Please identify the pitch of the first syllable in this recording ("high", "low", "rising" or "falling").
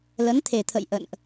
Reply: rising